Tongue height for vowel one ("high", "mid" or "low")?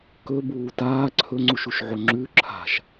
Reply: mid